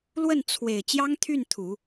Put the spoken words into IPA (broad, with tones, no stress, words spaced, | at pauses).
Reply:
lwə˥˩nt͡sʰwe˨˩ɪ̯ t͡ɕjɑ˥ŋt̪ʰy˥˩nt̪ʰu˨˩˦